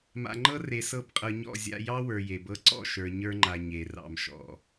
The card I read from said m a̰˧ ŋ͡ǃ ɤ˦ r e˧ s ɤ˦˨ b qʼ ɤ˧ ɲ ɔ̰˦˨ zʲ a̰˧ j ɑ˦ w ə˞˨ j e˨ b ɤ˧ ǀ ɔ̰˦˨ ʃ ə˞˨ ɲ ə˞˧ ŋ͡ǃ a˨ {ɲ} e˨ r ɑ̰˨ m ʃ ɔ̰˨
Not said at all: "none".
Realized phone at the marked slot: ɲ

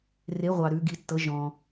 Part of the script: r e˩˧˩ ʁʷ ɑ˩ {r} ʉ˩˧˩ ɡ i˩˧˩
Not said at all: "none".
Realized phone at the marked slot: ɾ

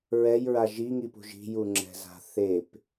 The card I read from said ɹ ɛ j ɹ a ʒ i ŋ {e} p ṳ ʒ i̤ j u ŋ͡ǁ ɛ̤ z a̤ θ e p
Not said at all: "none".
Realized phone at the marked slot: i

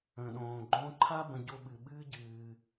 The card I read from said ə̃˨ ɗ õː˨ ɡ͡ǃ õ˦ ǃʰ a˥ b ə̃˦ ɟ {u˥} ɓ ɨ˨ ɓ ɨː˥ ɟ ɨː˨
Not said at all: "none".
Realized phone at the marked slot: o˥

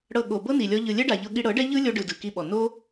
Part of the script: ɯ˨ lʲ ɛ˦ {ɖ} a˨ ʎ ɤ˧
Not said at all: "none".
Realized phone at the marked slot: ɖ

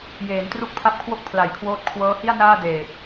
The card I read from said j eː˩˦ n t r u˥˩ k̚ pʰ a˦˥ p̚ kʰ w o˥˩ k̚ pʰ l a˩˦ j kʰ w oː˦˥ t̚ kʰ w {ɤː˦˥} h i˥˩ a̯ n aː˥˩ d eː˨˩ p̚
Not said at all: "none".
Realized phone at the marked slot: ɤː˦˥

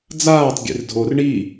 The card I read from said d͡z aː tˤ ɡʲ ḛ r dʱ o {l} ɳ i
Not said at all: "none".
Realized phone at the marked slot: r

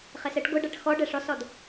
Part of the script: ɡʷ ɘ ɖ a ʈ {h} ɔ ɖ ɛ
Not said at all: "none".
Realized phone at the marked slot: x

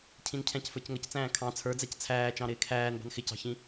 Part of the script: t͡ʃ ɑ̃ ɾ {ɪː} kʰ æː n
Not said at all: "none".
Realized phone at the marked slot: ɪː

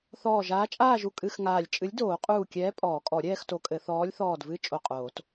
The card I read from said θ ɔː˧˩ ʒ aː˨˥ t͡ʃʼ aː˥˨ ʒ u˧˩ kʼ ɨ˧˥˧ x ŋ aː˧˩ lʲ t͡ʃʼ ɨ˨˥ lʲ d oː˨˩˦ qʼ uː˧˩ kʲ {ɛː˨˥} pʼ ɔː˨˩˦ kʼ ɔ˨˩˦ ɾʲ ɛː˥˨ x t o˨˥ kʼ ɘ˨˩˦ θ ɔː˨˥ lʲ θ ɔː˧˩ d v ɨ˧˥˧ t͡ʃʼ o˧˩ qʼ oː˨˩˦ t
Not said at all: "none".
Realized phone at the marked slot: ɛː˨˥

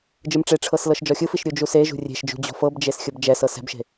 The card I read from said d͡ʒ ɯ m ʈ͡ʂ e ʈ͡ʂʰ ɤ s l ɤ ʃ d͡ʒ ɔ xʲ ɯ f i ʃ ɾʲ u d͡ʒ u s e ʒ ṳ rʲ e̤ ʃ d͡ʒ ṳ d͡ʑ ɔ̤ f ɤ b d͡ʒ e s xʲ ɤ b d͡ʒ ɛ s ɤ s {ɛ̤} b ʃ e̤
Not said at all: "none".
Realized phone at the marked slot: ɛ̤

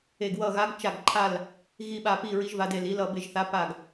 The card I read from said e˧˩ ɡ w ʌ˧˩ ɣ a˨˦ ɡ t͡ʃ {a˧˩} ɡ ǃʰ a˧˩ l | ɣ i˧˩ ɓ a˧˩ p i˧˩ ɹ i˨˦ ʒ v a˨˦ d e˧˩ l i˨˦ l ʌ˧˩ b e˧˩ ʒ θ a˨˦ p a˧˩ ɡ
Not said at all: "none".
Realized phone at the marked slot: a˧˩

